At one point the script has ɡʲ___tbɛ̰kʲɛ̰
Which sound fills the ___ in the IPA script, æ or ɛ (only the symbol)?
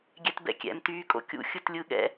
ɛ